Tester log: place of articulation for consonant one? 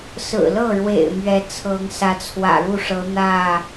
alveolar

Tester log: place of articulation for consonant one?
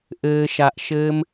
glottal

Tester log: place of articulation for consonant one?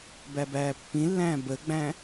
labial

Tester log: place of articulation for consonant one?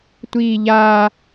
alveolar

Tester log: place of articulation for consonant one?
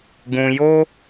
velar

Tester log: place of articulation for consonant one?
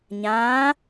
palatal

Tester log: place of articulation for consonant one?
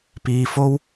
labial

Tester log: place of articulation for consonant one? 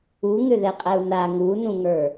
velar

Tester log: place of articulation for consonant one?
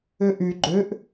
glottal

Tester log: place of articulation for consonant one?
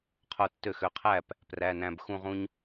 uvular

